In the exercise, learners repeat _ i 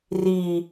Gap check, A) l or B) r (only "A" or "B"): B